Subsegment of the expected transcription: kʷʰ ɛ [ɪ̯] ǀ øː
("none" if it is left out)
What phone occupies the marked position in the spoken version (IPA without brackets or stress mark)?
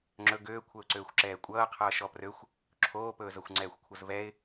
ʊ̯